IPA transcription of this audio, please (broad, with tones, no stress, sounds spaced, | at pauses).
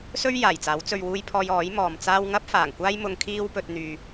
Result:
s ɵ˥ ɥ j aː˨˩ j t͡s aː˨˥ w t͡s ɵ˨ ɥ w uː˧ j pʰ ɔː˧ j ɔː˨˥ j m ɔː˨ m t͡s aː˥ w ŋ ɐ˥ p̚ f aː˨˩ ŋ kʷ aː˥ j m ʊ˧ ŋ kʰ iː˥ w p ɵ˧ t̚ n̪ yː˨